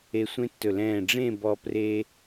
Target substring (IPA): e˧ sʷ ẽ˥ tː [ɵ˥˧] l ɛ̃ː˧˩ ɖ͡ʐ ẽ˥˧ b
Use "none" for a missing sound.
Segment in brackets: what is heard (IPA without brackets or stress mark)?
ɵ˧˩